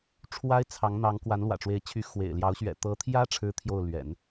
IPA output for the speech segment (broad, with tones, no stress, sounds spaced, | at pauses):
ʈ͡ʂʰ w a˥ ɪ̯ t͡sʰ ɑ˧˥ ŋ n̪ ɑ˧˥ ŋ k w a˧˥ n l w ä̰˨˩ ʈ͡ʂ w e˧˥ ɪ̯ t͡ɕʰ y˧˥ x w ḛ˨˩ ɪ̯ l j ɑ˧˥ ʊ̯ ɕ ɥ ɛ̰˨˩ t̪ ɤ˧˥ t̪ʰ j ä˥ ʈ͡ʂʰ ɻ̩˥ t̪ʰ j o˥˩ ʊ̯ l ɥ ɛ̰˨˩˦ n